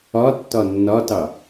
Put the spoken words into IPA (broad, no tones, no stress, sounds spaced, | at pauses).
ɒ tː ɒ nː ɒ t ɑ